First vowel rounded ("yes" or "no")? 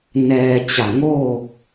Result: no